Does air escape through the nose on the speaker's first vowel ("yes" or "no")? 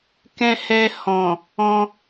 yes